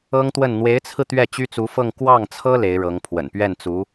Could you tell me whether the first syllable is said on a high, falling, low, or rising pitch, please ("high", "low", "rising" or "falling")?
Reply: high